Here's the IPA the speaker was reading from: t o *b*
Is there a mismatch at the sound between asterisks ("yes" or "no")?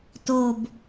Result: no